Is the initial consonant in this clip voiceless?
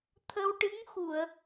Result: yes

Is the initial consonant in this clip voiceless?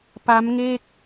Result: yes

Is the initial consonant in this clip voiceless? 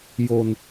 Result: no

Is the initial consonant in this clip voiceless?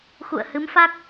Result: yes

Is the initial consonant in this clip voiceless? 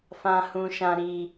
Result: yes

